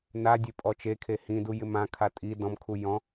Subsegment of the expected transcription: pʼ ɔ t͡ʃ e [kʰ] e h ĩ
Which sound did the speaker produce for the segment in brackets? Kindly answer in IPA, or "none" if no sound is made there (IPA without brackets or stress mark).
kʰ